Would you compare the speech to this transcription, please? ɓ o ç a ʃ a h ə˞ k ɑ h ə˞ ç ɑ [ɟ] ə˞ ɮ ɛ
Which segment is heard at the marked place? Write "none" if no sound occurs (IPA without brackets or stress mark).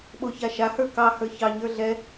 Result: ɲ